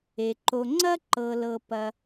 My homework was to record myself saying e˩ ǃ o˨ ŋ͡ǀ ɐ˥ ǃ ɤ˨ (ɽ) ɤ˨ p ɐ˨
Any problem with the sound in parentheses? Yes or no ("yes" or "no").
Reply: yes